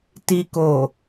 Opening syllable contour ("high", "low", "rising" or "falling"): low